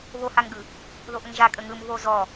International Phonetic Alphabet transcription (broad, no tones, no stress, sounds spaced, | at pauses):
β o h a ŋ ɡ ɯ | ð o ʔ ə ŋ ʒ a kʼ ə ŋ ɯ m β o z ɔ